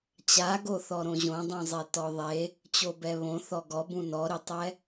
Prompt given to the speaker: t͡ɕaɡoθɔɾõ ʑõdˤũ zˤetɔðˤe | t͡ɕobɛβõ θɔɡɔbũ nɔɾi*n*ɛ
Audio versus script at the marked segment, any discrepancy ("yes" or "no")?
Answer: yes